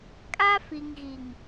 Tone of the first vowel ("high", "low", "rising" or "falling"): high